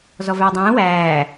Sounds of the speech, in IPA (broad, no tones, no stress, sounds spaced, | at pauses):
z ɔ v æ dˤ ɛ̃ː w æː